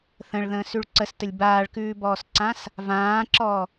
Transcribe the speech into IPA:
θ ə̃ ɭ ð ə̃ː s ʉ ɭ ǀ ə s t ə lʲ b aː ɭ k ʉː b ɔː s ǀ ã s | v ãː ǁ ɔ

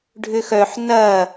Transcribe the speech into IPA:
ɖʱ ʏ x œ ħ n ɐ

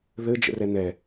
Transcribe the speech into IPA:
ð ɘ d͡ʒ ə̰ r ɛ n̪ ɛ

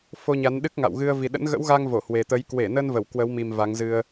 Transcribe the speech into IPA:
f o˧ ɲ a˨˦ n ɗ ɨ˦˥ k̚ ŋ a̰˧˨ w ɣ ɨ˧ ə̯ v i˨˩ ɗ ə̰˧˥ n ɣ ə̰˧˥ w ɣ a˧ ŋ v o˧˩ h w e˨˩ t̪ ə˨˦ j k w e˧˩ n ə˧ n v ə˧˩ w k w ə˨˦ w m i˨˩ m v a˨˦ ŋ z ɨ˧ ə̯

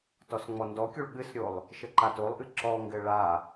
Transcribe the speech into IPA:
t ɔ s ŋ͡m ɔ n d ɔ kʲ u ɭ ɠ ɨ s ɾʲ o lˠ | ʃ ɘ ǃ a t o lˠ ʔ ɨ ǁ ɔ ŋ ɡ ɘ ɭ a

